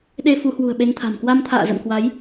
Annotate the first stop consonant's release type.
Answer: implosive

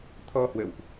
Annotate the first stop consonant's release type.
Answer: aspirated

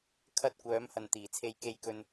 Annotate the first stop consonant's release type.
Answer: aspirated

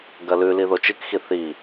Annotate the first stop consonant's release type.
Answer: plain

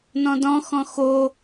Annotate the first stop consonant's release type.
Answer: plain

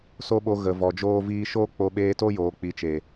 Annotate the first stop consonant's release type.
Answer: implosive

